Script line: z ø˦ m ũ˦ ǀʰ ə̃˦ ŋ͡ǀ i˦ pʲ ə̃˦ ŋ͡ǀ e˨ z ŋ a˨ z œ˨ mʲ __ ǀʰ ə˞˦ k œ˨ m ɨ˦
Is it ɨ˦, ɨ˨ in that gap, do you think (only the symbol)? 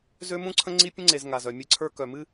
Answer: ɨ˦